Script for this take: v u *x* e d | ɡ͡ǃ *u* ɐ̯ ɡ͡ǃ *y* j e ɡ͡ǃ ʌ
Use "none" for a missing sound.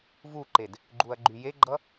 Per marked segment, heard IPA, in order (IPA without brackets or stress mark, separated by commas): ǃ, u, y